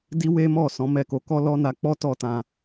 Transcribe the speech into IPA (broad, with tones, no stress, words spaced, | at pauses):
di˦we˦mɔ˦˨ sɔ̃˨˦mɛ˦˨ko˧ kɔ˦lɔ˦na˧k͡pɔ˦ tɔ˦tã˧